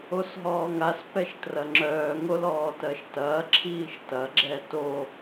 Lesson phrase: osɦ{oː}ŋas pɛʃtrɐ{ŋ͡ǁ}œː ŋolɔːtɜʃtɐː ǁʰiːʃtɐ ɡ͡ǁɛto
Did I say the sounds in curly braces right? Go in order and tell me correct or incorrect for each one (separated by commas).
incorrect, correct